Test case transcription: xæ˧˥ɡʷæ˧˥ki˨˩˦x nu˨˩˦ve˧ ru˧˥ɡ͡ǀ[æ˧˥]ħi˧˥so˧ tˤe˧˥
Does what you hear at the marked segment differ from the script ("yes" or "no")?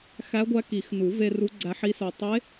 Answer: no